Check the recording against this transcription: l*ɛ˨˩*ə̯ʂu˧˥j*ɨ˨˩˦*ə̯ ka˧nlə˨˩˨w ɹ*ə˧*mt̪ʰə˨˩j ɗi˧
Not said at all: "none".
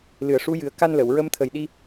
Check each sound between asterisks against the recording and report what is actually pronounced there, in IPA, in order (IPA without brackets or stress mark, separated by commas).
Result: ɨ˨˩, ɨ˨˩˦, ə˧